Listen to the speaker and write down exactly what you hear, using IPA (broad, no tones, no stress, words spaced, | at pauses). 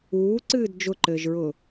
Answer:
uːǀɨːd d͡ʒʊǃɘːʒɹʊː